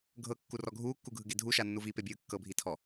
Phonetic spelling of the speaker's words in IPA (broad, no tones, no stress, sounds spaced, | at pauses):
ɡʱ ɤ kː u r ɔ ɡʱ uː kː u ɡʱ ɯ ɡ e dʱ u ʃ a nː u v i p e bʲ ɯː kː ɤ bʱ i tʰ ɔ